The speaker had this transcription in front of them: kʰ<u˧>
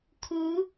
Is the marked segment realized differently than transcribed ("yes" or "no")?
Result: yes